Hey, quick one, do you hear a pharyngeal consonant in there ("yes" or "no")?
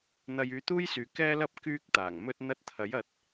no